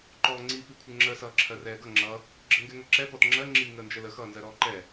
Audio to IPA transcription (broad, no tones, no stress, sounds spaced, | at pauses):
ǃ ɔː ŋ͡ǀ i p i kʷʰ ə ŋ͡ǁ ə s ʌː ǁʰ ɜ r ɛː ɡ ʌ ŋ͡ǁ ʌ | ɡ͡ǁ ə ŋ ɡ ɛ ŋ ɜ ǁ ɛ p ɔ t ŋ͡ǁ ɜ ŋ͡ǁ i ŋ əː n d͡ʒ ə l ə x ʌː n z ɜ ɾ ɔː ǃ ɛ